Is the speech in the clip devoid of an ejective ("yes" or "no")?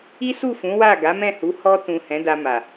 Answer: yes